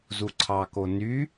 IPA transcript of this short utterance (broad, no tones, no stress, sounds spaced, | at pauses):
z u ǀʰ ɑ k o n y